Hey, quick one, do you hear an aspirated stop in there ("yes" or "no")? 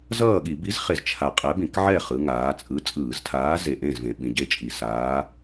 yes